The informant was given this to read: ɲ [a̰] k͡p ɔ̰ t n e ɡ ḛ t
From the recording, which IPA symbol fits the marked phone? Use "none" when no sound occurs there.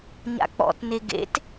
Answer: a̰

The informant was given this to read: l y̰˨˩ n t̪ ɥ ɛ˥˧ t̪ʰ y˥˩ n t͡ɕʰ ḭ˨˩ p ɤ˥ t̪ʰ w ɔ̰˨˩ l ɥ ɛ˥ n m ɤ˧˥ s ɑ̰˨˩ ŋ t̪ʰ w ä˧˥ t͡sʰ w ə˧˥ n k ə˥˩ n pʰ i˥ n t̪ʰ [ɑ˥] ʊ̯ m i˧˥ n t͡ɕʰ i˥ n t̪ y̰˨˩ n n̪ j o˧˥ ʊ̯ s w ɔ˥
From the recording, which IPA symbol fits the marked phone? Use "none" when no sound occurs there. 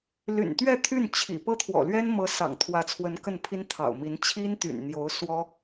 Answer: ɑ̰˨˩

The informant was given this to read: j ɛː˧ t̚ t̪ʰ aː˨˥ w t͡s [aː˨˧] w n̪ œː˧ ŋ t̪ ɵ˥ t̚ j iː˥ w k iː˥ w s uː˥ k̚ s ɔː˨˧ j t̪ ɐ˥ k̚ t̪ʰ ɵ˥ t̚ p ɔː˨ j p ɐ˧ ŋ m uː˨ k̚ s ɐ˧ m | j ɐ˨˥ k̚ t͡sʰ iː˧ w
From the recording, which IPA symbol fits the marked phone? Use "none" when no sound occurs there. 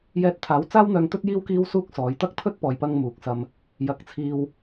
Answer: aː˥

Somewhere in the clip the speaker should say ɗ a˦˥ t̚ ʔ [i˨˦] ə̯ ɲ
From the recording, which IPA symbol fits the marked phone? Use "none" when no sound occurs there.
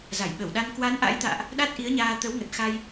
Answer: i˨˦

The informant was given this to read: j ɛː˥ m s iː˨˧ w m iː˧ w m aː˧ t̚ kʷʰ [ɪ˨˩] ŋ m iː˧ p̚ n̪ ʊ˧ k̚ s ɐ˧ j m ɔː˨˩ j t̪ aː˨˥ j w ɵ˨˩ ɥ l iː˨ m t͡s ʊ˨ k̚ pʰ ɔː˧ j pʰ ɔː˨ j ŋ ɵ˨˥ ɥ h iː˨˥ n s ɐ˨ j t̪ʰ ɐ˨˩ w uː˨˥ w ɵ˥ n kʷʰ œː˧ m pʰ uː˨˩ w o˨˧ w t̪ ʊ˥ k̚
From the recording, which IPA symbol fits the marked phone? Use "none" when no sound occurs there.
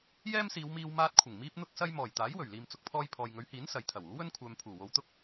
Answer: ɪ˨˩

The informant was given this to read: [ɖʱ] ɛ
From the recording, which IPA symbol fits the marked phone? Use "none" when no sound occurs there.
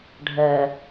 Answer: ɖʱ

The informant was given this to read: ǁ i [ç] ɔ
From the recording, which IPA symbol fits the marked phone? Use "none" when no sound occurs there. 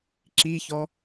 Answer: ç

